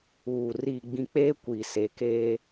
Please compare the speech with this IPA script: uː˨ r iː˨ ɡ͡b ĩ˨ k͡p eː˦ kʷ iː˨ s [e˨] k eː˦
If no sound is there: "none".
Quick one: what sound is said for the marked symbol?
e˨˦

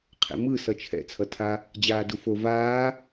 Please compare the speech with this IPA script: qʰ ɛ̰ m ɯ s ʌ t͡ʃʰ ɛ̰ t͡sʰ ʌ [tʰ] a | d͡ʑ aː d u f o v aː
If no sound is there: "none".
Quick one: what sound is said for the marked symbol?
tʰ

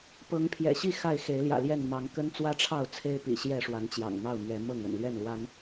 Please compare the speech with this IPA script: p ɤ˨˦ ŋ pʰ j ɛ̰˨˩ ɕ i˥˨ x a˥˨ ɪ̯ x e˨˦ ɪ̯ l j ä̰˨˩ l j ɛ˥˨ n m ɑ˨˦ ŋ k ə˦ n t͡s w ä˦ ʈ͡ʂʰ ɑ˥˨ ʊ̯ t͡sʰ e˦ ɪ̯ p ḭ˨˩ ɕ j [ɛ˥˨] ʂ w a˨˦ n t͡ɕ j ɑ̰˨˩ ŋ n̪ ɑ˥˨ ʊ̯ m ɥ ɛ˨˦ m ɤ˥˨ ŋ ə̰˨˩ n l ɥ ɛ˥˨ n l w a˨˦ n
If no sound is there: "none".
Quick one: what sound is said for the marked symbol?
ɛ˥˨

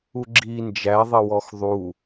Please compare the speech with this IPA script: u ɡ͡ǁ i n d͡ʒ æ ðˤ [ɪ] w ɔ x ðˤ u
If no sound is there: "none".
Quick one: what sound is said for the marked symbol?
ɪ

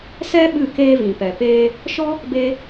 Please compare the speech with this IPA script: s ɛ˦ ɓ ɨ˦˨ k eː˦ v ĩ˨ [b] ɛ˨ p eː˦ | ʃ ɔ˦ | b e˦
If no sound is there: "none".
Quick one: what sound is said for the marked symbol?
p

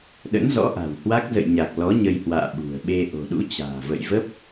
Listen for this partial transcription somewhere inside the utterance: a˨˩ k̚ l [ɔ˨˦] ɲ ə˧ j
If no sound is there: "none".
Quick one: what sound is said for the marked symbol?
ɔ˨˦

